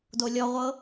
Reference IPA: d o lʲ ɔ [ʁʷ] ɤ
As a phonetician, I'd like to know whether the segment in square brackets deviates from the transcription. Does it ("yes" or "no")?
no